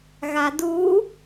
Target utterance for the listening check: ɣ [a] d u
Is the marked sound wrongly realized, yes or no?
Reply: no